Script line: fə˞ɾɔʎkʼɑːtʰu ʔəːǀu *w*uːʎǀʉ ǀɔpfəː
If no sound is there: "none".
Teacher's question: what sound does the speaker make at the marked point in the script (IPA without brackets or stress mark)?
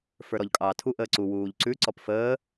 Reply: w